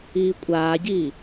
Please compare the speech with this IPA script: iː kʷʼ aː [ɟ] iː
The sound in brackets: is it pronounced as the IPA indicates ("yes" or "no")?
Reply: yes